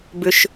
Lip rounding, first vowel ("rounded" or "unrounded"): rounded